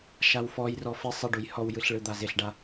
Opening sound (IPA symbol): ʃ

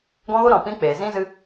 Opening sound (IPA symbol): ɡ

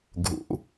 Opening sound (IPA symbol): ɡʱ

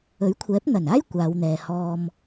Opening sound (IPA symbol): ɵ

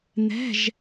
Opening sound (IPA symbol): n̪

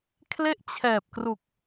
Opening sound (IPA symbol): kʰ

